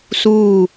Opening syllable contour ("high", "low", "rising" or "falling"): falling